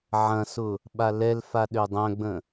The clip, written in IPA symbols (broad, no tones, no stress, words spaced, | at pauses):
ʕɐ̃sʊ | ɓalɛlfa ɗødˤœ̃ɡ͡bə̃